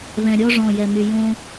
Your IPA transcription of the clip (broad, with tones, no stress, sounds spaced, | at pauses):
β ɛ̃˨ ɾʲ ɔ˧ ʐ ɔ̃˦˨ j ɛ˧ m y˧ j õ˦